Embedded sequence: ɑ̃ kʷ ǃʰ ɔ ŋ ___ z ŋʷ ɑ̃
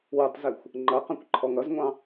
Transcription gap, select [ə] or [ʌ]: ʌ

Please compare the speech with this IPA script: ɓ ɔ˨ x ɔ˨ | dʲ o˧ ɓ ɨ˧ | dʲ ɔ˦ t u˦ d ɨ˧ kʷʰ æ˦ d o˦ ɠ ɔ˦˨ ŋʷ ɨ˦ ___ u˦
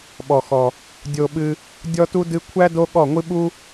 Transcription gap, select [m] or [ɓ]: ɓ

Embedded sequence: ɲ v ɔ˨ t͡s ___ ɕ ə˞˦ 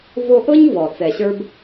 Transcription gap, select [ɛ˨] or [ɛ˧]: ɛ˨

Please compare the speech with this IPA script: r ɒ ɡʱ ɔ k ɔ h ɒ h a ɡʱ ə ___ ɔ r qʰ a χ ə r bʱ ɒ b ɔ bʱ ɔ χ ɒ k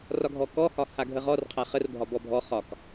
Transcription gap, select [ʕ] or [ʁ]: ʁ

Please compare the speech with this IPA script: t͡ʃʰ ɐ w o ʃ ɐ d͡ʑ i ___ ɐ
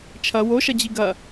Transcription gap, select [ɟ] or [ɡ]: ɡ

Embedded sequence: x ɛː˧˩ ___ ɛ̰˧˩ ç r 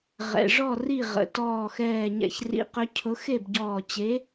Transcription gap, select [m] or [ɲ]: ɲ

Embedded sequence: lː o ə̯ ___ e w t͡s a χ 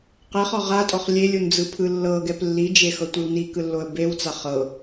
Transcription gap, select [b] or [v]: b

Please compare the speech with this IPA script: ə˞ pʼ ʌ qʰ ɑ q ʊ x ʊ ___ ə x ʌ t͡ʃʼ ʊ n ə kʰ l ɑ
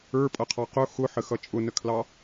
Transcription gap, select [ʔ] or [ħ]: ħ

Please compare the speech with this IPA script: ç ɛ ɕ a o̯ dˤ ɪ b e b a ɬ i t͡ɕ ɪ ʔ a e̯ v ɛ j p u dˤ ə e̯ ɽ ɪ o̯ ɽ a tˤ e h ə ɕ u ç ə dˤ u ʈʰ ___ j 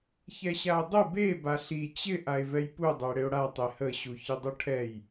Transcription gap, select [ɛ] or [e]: ɛ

